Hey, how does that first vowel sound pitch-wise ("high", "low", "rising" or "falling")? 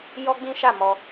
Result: high